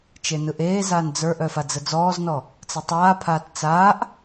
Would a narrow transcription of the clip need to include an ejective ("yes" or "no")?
no